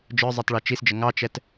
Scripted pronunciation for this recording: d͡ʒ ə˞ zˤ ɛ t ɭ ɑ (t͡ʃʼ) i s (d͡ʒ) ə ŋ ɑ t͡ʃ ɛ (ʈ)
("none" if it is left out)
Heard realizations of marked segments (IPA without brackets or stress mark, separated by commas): t͡ʃ, d͡ʒ, t